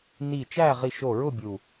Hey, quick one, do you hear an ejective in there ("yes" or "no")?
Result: no